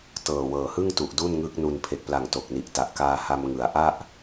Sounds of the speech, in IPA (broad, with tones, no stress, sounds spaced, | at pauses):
t ɤː˨˩ w ɤː˨˩ h ɯ˥˩ ŋ t u˨˩ ʔ d u˥˩ n ŋ ɯ˦˥ k̚ n u˧ n pʰ e˨˩ k̚ p l a˨˩ ŋ t o˨˩ k̚ n i˨˩ ʔ t a˨˩ ʔ k aː˧ h a˧ m ŋ ɯ˩˦ a̯ ʔ a˥˩ ʔ